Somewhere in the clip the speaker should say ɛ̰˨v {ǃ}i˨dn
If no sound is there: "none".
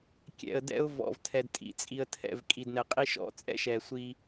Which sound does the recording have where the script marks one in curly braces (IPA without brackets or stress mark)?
kʼ